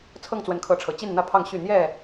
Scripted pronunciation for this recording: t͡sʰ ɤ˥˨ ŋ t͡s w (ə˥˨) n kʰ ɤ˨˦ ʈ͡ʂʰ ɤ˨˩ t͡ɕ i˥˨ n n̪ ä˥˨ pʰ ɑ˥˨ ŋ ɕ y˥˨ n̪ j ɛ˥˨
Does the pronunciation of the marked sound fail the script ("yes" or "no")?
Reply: yes